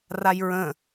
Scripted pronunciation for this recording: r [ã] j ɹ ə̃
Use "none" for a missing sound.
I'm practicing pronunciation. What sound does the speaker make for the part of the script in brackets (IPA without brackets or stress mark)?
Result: a